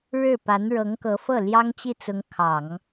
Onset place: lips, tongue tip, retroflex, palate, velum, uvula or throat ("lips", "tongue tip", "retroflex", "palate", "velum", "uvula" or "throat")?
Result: retroflex